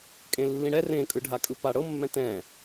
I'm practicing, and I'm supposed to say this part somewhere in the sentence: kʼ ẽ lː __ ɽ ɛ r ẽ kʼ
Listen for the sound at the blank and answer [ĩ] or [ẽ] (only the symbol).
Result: ĩ